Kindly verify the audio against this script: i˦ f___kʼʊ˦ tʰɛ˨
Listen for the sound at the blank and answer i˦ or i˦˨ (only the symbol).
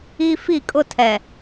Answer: i˦˨